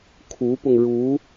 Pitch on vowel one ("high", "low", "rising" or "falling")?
rising